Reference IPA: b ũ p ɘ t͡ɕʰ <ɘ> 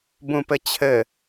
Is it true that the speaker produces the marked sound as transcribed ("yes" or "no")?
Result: yes